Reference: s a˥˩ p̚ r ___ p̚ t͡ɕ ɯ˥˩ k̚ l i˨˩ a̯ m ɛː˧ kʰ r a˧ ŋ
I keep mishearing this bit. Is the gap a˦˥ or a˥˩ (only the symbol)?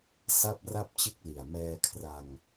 a˥˩